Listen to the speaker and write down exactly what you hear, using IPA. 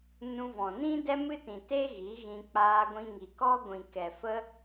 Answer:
n ũ˧ v ɔ̃˨ n ĩ˦ d ɛ˦ m ɨ˦ t ĩ˨ t e˦ ɣ i˨˦ ɣ ĩ˧ k͡p aː˧ ɡʷ ĩ˧ ŋ i˨ k ɔ˦ ɡʷ ĩ˨ k ɛ˨ f ə˦

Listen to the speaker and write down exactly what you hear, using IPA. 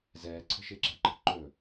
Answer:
z ɛː ǀʰ ə̤ ʃ ɪː ǁ æ̤ ǃ ə̤ ǃ ɵ

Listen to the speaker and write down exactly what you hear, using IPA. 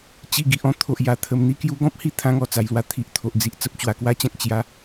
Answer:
t͡ɕ i˧ ɡ i˨ ʔ ɔ̃˥˧ t̪ʰ o˨ ʔ j a˨˩ t̪ʰ ə˨˩ m n̪ i˧ k j u˧ ɡ ɔ̃˦ p̚ h i˥˧ t̪ʰ ã˧ ŋ ɔ˨˩ t͡s a˧ j l w a˧ t̪ʰ i˨ ʔ t̪ʰ o˨ ʔ d͡z i˨ ʔ t͡s ə˦ p̚ t͡ɕ w a˧ k w a˦ t͡ɕ ã˦ k̚ t͡ɕ j a˨˦

